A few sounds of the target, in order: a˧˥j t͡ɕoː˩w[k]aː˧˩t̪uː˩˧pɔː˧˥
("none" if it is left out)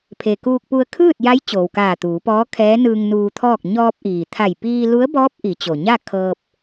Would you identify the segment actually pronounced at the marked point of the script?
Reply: k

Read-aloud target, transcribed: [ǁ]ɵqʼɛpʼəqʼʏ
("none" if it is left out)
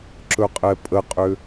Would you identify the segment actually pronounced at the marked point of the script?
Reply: ǁ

